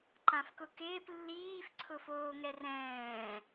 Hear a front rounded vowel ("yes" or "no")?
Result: no